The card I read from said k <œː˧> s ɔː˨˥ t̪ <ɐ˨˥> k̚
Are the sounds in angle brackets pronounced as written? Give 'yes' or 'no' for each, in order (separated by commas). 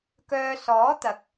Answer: yes, yes